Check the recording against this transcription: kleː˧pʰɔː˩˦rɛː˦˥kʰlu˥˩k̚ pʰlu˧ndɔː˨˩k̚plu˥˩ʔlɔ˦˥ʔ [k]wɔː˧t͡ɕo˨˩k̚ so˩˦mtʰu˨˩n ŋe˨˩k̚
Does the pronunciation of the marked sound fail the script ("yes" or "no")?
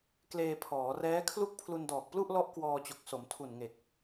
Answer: no